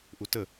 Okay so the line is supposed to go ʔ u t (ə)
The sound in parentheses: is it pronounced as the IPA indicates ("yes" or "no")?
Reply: yes